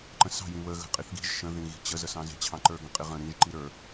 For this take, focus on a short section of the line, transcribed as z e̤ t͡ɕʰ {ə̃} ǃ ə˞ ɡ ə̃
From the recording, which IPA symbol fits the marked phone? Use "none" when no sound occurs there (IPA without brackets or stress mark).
ɑ̃